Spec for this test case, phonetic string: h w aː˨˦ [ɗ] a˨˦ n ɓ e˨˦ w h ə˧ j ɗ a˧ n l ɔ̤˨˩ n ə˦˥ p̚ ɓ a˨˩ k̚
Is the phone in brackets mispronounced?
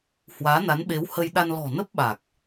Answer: yes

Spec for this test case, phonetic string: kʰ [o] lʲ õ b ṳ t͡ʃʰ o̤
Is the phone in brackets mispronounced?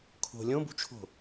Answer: yes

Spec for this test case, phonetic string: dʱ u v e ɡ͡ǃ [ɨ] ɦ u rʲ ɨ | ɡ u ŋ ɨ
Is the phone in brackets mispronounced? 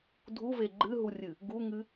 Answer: no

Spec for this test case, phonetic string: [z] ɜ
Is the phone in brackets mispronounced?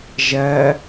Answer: yes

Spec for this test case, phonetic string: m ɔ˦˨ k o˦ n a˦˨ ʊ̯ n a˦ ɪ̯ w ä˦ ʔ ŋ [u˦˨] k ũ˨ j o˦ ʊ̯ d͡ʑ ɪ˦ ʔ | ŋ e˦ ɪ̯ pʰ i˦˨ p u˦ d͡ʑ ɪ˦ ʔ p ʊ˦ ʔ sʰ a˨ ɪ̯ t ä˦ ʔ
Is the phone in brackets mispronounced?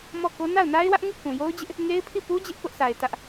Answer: no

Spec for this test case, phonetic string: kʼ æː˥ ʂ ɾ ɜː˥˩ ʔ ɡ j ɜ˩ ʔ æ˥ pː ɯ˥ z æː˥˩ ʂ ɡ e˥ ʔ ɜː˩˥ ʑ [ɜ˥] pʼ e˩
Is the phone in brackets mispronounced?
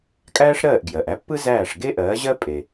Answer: no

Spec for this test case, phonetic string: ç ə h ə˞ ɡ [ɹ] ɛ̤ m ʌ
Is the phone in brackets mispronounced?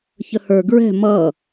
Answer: no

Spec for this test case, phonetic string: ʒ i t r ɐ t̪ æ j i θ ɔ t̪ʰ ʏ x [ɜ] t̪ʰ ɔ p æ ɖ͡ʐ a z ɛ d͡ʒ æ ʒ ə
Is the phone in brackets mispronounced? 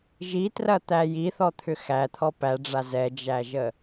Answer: yes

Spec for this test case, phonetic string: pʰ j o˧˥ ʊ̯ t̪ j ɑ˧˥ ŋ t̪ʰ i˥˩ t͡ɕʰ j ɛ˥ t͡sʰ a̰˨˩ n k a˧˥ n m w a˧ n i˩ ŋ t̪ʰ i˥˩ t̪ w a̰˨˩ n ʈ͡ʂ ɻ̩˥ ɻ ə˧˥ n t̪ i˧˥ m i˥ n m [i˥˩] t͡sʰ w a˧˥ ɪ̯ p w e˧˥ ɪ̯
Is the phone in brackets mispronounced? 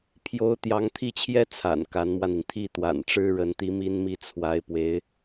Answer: no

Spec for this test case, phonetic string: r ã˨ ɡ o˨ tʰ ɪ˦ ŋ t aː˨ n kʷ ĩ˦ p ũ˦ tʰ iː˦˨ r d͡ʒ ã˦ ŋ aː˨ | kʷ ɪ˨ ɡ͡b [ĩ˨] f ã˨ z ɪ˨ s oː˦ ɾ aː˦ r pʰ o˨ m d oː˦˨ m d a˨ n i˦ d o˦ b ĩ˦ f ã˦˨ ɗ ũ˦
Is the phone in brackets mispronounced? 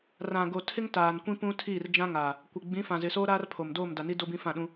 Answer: yes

